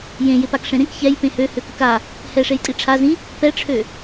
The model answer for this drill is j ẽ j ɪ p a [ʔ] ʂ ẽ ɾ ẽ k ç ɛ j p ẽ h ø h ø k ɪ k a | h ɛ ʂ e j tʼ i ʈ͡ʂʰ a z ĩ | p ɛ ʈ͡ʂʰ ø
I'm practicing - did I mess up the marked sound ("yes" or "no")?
yes